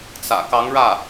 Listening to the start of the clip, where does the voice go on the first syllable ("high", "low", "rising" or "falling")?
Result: low